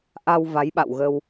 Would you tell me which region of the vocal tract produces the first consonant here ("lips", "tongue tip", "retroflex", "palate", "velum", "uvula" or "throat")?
throat